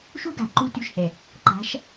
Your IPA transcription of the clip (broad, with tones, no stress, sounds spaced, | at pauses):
ʃ u˦ ɡ a̤˨ ǃ u˦ t y˦˨ ʃ h ɛ˨ | ǃ a̤˨˦ ʃ